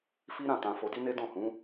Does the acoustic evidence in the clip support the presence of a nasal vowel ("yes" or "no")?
yes